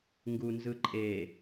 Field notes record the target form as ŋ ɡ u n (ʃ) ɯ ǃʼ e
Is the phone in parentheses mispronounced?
yes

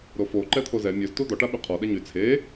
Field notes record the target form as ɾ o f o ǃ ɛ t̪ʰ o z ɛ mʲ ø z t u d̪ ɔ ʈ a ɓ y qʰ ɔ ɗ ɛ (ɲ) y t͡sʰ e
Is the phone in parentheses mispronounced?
no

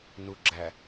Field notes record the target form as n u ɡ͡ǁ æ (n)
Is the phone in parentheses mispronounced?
yes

